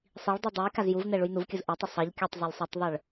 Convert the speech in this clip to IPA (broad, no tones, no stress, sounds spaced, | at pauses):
sˤ i ɭ dˤ u dˤ ɯ j k a z j u v n ɛ ɭ u j n u v kʲ ɯ z ʔ ɛ tˤ ɯ sˤ ʌ ʎ kʲ ʌ tˤ zˤ a lʲ sˤ ʌ tˤ ðˤ ɯ ɭ